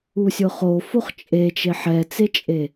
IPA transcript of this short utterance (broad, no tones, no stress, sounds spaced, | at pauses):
u sʲ ʊ χ o f o χ t͡ʃʼ e t͡ʃ e ħ ɛ t͡s e t͡ʃʼ e